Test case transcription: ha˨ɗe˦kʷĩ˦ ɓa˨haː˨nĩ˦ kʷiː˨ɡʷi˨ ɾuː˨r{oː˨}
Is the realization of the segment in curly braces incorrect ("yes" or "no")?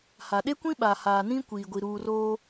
yes